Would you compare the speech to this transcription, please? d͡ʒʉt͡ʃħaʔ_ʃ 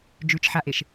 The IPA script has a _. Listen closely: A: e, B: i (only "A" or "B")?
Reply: A